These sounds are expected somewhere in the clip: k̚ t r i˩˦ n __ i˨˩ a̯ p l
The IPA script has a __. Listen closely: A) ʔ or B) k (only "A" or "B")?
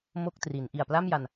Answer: A